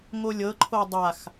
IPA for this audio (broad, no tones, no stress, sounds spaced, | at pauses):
ŋ o lʲ ɤ ǃʰ o dˤ a x